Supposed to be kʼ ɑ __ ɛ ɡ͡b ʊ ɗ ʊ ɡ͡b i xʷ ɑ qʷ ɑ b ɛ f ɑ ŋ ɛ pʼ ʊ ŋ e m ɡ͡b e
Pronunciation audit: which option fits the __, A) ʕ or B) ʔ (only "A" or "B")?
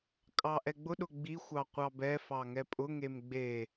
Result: B